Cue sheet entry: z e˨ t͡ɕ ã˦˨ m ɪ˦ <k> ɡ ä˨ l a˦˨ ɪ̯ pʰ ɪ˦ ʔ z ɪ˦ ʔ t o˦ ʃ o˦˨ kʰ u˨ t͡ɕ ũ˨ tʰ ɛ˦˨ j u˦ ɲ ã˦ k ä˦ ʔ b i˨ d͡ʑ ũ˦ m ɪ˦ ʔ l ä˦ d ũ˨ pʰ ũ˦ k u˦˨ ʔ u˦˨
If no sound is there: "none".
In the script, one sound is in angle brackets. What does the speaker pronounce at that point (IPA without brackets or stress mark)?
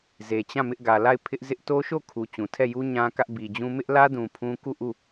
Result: ʔ